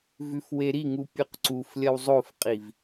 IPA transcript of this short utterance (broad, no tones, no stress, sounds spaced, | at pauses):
v ʉ f w e ɾ i ŋ u pʲ ʉ q ǀ u f lʲ ɐ w zˤ o f qʼ i v